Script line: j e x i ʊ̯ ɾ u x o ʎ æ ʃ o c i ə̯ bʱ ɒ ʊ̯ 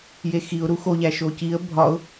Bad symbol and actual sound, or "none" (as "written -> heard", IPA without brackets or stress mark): none